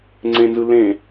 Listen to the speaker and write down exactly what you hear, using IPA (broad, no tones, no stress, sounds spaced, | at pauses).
ŋ͡ǀ ẽ n z ɯ l ẽ